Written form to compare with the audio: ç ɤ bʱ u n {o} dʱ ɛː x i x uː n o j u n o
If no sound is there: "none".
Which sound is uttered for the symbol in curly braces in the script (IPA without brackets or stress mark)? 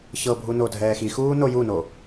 o